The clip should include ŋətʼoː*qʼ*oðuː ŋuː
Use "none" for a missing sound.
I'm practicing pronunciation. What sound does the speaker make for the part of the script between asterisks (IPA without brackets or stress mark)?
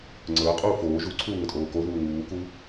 k